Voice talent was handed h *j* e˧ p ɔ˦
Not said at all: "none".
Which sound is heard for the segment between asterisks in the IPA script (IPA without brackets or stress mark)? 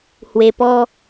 w